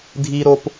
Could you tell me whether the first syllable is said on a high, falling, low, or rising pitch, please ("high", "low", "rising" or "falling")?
high